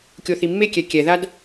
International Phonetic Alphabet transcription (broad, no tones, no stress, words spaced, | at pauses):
kʲoθimːekʲɛ kʲɛðad